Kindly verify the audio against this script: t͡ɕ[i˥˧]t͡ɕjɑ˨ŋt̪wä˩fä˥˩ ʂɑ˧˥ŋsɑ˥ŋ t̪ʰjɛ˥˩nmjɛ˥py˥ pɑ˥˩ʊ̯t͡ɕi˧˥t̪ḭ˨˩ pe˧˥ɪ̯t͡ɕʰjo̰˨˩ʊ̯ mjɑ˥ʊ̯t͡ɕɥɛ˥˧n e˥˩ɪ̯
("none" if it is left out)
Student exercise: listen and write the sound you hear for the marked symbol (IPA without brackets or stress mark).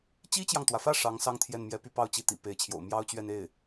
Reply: i˥